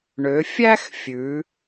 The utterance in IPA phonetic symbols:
ɳ ø˩˧ fʲ æ˥ x fʲ ʉ˩˧

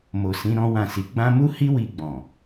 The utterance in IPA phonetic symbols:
m o˨ s ĩ˨˦ ɾ ɔ̃˦ w ã˦˨ s i˨˦ ɡ͡b ã˦ m u˦ h i˦ w i˧ ɡ͡b ɔ̃˨

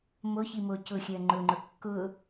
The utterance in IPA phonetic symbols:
m o ç i m o c ʊ xʲ ɜ ŋ͡ǃ ʊ ŋ͡ǃ ʊ kː ʊ

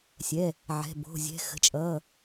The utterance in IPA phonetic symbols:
sʲ ɛ˩˧˩ | ʕ ɛ̤˩˧˩ b o̤˩˧˩ zʲ ɛ̤˩˧˩ x ə̤˩˧˩ t͡ʃʼ ʌː˩˧˩

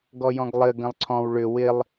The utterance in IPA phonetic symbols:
ɡ ɔ j ɔ̃ ɡ lˠ ɘ ɡ ə̃ lˠ ǀʰ ɔ̃ w ɭ ʏ w ɪ lˠ

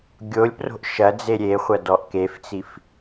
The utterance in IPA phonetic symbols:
ɡʲ o lʲ p r o̤ ʔ ʃ ɐ d͡z e ɾʲ e χʷ ɐ d ɔ ʔ k e f t͡s i f

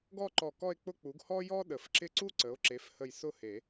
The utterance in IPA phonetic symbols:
ɡ ɔ˥˧ ǃ ɔ˧˩ k ɔ˥˧ e̯ k͡p ʊ˥˧ k͡p u˩˥ ɡ h ɔ˥ j ɔ˥ ɗ ə˨˩˦ f ǁ ɪ˥ ǀ u˥ ǀ ə˩˥ o̯ ǁ e˩˥ f h ə˧˩ j s ʊ˥˧ h e˨˩˦

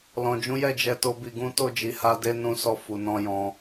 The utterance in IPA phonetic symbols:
l ɔ̃˨ d͡ʒ ũ˨˦ j ɛ˦˨ d͡ʒ ɛ˧ t o˦ b i˧ ɡ ũ˦ t o˦˨ d͡ʒ i˨˦ h a˧ d e˦ n ũ˧ s ɔ˧ f u˨ n ɔ̃˧ j ɔ̃˧

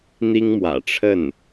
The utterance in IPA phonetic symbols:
n̪ i˥ ŋ m w ä̰˨˩ ʈ͡ʂʰ ə˥˩ n

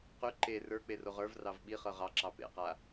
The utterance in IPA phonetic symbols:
q y ǃ e r ə˞ k͡p e r o ʁ ə˞ v r ɑ v ɓ i χ ɤ ʁ ɑ ǁ ɑ p ḛ q a

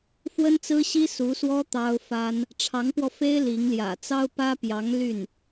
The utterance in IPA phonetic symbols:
f w ə˥ n t͡s ɹ̩˥ ɕ i˥ s u˧˥ s w ɔ˥ t̪ ɑ˥ ʊ̯ f a˥ n | ʈ͡ʂʰ ɑ˧˥ ŋ p w ɔ˧ f e˥ ɪ̯ l i˧˥ ŋ l j ä̰˨˩ t͡s ɑ˥ ʊ̯ p ä˥ p j ɑ˧˥ ŋ l y˥˩ n

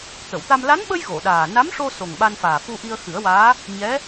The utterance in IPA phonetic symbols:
t̪ ə˨˩˨ w t̪ a˧ m l a˧˥ n ɓ ə˧ j ɣ o˨˩˨ ɗ aː˨˩ n a˧˥ m ʂ o˧ s o˨˩ ŋ ɓ a˧ n f aː˨˩ f u˧ ʔ i˧ ə̯ x ɨ˨˩˦ ə̯ w aː˧˥ | ɲ ɛ˧˥

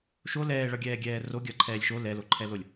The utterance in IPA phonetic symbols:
ʃ o l ɛː ɭ ʌ ɡʲ ɛː ɡʲ ɛː r o ɡʲ ʌ ǃʰ ɛː lʲ ʃ o l ɛ l o ǃʰ ɛ l o lʲ

